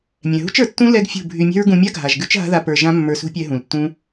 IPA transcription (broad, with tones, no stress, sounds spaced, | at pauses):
mʲ ɛ̃˨ ɦ ṳ˦ t͡ʃ ə˞˨ tː ũ˦ l ɛ˦ ɡ fʲ ṳ˦˨ bʱ y˧ mʲ ɛ̤˦ ɹ ɡ ũ˧ mʲ a˦ ɡʱ a˨ ʒ ɡ ʉ˦ t͡ʃ ɦ a̤˦ ð a˧ p ə˞˨ ʒ ã˦ mː ə˞˧ s ṳ˦ pʲ ɛ˧ ɦ ũ˨ l tː ũ˦